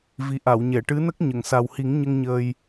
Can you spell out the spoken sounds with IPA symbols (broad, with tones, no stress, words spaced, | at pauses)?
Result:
vi˨˩ʔa˨˩˨wɲɛ˨˩˨ ʈɨ˧˥nə˦˥k̚ ɲə˨˩˨ŋsa˨˩w hi˨˩˦ŋɲə˧ŋ ɲəː˧j